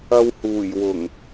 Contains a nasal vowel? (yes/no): no